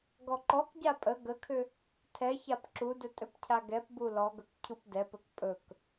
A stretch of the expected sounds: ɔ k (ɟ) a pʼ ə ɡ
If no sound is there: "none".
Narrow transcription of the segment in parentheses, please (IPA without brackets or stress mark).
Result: ɟ